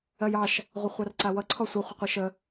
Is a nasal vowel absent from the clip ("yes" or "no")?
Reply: yes